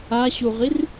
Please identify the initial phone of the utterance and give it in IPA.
a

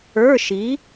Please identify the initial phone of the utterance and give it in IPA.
ə˞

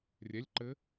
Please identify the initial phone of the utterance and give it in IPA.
rʲ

